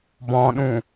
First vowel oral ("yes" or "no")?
no